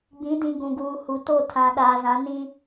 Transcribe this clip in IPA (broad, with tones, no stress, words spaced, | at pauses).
ɡ͡bĩ˨˦dĩ˨ ɡũ˨ɡuː˨hu˨ to˦˨tʰã˨ ɗaː˨zã˨˦nĩ˦